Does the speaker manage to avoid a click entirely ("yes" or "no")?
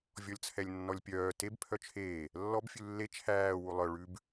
yes